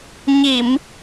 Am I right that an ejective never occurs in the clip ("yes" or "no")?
yes